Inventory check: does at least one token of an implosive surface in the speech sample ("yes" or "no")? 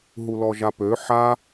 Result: no